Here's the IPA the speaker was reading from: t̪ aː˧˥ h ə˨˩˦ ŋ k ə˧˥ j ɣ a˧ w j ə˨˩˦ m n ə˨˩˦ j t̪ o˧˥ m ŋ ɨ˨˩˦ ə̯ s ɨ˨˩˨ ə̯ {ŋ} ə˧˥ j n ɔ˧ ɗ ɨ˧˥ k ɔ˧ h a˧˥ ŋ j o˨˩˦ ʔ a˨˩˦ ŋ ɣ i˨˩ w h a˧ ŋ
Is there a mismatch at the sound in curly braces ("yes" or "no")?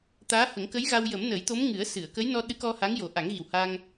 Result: yes